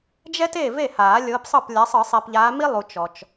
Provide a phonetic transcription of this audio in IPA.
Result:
d͡ʒ ɛ˥ t eː˥˩ v e˥˩ h aː˨˩˦ lʲ ɤː˨˦ p sˤ ɤ˥˩ p lʲ a˨˦ sˤ ɯː˨˩˦ sˤ i˨ p ʎ aː˨˦ m i˥ lˠ u˨ t͡ʃ ɔ˨ t͡ʃ

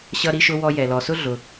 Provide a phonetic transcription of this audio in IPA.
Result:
ɕ ʌ˧ ɾ i˧ ʃ ʊ˧ w ɔ˧ j ɛ˩ l ɔ˩ s ʊ˥ ɮ ʊ˩

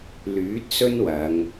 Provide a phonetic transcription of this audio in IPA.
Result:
l yː˨˥ t̚ s ɵ˥ n w ɐ˨˧ ŋ

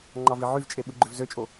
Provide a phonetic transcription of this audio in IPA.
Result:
ŋ͡ǃ ɑ v i ʕ y v t͡ʃʼ e ɓ ɯ ɡ͡ǃ ø v z ø t͡ʃʼ o

